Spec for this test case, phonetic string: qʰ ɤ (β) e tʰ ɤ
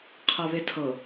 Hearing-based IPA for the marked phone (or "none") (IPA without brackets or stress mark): β